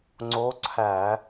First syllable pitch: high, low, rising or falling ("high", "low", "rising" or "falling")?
rising